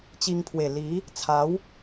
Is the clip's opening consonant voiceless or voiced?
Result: voiceless